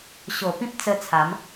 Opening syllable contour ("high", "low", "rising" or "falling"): low